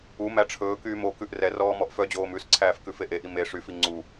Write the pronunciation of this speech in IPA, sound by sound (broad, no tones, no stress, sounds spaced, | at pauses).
u m æ ʈ͡ʂʰ ɵː k yː m o k ʉ ʔ r ɛ r ɔː m ɔ ʔ f œ d͡ʑ oː m ʉ s ǀʰ æː f k ʉ f e ʔ e ʔ i m e ʂ y f i ŋ͡ǀ u